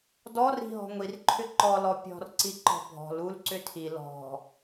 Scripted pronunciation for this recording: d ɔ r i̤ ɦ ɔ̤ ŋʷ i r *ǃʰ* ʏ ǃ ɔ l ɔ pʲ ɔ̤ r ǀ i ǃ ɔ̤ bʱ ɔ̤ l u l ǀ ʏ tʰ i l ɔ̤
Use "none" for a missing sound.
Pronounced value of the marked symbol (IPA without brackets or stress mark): ǃʰ